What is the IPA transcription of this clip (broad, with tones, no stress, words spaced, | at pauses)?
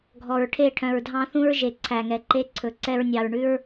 ɡʱɔ˨ɹʈʰe˦˨ʈʰœ̃˨ɹdʱɑ̃˦ θũ˦ɹʒe˨ǀʰæ˨ŋɛ˨ ǃe˦ ǀʰɵ˨ ǀɛ˦ɹnʲɑ˨ɹɳʉ˦ɹ